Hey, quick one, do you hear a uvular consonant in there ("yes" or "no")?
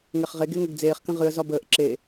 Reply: yes